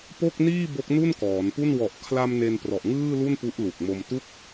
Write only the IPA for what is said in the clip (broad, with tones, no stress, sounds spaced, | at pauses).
p o˥˩ k̚ n iː˥˩ b o˦˥ k̚ n u˥˩ n k ɔː˩˦ n p u˥˩ n w ɔ˨˩ ʔ kʰ l a˧ m n e˧ n p r ɔ˨˩ ʔ ŋ ɯː˥˩ l u˥˩ n p u˦˥ ʔ l u˨˩ k̚ m o˧ m t u˥˩ k̚